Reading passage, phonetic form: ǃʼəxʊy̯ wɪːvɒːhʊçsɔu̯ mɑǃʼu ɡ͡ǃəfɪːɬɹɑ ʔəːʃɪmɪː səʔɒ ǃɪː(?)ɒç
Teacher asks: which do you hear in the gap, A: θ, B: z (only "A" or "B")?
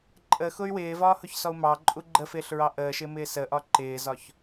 B